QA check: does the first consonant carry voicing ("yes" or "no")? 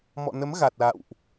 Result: yes